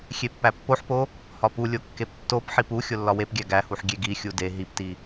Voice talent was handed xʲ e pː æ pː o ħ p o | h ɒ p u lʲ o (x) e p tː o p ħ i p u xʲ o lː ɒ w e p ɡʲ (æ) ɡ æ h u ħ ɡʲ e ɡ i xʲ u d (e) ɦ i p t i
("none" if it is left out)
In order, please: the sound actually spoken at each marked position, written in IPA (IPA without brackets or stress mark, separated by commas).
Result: kː, æ, e